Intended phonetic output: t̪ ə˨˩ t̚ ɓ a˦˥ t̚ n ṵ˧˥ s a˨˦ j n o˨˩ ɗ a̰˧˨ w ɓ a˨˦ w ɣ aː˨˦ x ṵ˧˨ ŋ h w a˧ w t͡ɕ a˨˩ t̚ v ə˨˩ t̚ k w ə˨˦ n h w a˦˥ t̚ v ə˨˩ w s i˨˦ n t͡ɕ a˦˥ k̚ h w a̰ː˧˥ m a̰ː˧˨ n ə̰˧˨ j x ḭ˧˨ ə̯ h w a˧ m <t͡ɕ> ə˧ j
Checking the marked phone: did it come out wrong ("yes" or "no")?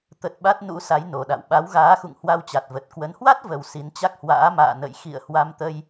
yes